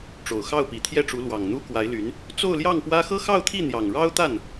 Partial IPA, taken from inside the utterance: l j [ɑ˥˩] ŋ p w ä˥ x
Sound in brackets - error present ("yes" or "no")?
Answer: no